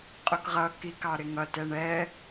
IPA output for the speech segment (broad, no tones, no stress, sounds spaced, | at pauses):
qʼ ʊ k ʁ ʌ k i k ɑ ɾ ɪ ŋ ʌ t ɛ ɳ ɛ